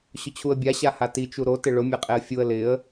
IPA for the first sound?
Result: ɕ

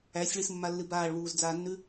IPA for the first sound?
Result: æ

